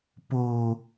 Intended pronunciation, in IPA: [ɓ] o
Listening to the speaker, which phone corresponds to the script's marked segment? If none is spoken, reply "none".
p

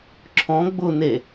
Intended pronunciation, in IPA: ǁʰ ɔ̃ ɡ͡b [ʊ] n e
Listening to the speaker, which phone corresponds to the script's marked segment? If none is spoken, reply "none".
ʊ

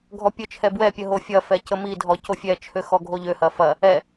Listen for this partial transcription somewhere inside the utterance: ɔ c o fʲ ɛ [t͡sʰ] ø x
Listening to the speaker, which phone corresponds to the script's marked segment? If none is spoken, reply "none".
t͡ʃʰ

